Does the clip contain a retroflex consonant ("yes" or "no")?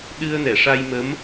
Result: yes